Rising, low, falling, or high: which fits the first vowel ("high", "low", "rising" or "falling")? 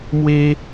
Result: high